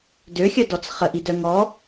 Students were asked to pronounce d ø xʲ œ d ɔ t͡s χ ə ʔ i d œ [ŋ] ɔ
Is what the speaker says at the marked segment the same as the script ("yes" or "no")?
yes